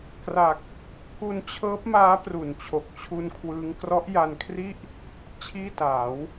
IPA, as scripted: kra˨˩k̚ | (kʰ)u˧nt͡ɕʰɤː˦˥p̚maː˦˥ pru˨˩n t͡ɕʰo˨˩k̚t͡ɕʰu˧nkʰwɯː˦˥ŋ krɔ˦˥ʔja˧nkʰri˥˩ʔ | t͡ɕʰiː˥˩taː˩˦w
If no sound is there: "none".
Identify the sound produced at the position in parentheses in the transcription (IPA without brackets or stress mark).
k